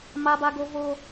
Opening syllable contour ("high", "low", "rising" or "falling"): high